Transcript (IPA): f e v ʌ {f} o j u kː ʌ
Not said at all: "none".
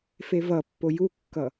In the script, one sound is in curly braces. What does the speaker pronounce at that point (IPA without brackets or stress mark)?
pː